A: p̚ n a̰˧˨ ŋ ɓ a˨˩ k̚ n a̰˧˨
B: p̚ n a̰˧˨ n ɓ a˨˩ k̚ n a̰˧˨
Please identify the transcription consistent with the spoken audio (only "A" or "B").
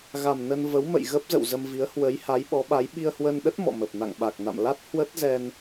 A